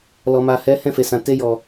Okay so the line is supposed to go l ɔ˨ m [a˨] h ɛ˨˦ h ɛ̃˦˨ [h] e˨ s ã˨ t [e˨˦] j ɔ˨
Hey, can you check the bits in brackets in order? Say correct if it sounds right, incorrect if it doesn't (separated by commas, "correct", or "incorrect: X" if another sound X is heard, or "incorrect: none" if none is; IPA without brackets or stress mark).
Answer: correct, incorrect: f, incorrect: e˧